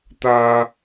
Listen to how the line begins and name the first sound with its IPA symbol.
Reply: t̪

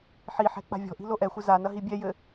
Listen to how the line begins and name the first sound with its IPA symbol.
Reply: ħ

